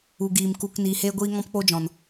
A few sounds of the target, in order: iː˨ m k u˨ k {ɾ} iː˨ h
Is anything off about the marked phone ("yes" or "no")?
yes